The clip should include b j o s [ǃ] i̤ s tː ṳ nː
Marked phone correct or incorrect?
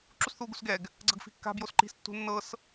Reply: correct